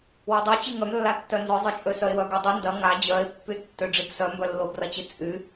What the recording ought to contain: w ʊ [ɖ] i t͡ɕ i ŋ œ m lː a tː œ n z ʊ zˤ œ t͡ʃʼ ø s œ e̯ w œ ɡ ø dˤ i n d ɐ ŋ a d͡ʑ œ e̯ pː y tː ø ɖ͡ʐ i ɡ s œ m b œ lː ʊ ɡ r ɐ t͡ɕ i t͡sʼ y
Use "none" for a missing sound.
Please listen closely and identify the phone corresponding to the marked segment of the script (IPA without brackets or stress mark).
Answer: dˤ